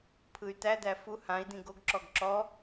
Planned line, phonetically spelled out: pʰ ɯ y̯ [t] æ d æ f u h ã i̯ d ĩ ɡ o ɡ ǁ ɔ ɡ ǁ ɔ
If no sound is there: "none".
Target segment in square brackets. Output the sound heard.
t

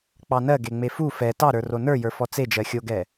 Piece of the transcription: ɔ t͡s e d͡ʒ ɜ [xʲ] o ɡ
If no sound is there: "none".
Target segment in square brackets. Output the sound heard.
xʲ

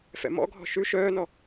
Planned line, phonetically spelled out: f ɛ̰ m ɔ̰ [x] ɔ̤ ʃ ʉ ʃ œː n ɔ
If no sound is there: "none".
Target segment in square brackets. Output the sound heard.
ɡʱ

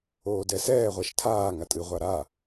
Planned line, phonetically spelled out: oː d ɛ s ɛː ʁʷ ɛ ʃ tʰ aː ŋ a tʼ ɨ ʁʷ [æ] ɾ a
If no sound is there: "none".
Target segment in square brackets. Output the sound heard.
a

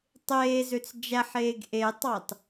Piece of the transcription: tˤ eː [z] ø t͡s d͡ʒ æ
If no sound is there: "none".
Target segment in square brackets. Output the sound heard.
z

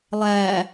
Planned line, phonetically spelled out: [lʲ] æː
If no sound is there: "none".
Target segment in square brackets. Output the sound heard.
lˠ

